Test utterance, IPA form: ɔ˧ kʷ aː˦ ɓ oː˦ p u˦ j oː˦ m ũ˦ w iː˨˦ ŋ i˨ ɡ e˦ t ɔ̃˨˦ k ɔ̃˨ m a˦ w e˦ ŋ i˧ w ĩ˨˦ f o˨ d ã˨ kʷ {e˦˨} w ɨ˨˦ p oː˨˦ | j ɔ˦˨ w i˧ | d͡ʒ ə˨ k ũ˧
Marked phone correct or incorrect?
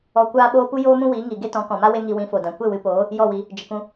correct